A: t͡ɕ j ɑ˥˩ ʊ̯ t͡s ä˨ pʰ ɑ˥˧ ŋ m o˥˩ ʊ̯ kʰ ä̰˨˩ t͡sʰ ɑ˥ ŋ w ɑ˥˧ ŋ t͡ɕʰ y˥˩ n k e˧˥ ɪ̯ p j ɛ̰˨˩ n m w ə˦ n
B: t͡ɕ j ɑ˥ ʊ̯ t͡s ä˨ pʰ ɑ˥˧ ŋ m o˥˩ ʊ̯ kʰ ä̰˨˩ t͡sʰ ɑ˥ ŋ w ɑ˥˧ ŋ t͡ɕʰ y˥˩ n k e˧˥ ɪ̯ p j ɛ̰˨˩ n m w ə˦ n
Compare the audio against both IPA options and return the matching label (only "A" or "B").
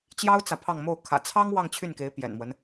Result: B